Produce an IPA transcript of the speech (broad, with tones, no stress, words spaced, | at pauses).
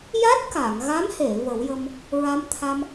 ja˦˥t̚ka˨˩˨ŋɣa˧˥mhe˨˩˨ və˨˩˦wjə˧m | ɹa˧mt̪ʰa˧m